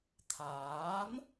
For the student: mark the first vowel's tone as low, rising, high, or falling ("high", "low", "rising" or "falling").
rising